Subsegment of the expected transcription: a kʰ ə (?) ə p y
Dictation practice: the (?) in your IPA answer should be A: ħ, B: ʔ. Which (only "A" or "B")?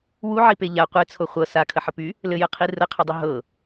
A